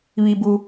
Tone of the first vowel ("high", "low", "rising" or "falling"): low